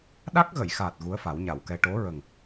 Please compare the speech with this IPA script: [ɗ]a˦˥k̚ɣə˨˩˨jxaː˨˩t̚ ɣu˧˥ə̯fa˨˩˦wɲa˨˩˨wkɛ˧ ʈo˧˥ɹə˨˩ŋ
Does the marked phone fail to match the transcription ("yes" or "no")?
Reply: no